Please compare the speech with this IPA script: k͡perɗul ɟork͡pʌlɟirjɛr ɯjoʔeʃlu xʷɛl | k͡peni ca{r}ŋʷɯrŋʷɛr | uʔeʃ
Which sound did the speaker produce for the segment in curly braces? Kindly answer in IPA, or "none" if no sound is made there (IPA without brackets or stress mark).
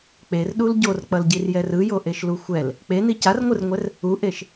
r